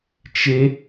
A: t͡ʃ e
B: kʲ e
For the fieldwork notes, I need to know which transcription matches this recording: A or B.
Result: A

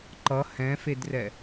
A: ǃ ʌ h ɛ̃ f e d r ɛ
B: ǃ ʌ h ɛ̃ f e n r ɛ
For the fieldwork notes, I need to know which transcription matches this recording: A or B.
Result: A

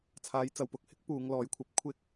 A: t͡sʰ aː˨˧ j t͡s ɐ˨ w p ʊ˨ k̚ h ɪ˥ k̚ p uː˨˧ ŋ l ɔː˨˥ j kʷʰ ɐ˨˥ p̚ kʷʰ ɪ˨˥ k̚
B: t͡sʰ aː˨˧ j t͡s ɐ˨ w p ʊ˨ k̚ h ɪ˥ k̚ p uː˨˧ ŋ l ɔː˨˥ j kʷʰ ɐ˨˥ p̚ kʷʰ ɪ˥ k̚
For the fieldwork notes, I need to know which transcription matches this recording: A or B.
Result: B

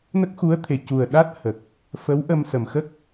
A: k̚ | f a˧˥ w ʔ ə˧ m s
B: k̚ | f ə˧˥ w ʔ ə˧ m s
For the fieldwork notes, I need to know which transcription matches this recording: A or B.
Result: B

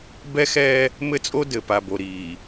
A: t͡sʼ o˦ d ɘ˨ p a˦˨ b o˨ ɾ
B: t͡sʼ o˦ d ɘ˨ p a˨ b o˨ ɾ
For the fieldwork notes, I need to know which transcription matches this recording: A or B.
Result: B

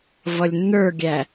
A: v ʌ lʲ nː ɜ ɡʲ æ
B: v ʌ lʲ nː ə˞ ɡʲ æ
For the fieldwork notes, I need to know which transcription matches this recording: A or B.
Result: B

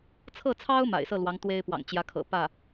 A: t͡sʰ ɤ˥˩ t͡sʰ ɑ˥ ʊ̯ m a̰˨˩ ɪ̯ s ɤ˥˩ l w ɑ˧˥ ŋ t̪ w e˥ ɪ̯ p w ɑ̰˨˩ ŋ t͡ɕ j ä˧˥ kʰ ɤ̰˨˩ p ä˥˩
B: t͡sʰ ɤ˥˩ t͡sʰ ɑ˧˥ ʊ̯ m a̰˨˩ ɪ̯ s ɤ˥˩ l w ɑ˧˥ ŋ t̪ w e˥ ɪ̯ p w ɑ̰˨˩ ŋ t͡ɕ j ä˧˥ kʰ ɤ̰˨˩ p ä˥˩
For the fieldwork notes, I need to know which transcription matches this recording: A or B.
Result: A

